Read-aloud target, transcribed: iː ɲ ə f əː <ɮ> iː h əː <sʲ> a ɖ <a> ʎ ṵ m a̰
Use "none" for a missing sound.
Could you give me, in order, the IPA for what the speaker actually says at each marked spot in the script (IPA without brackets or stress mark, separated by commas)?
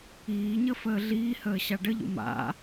ɮ, ɕ, ə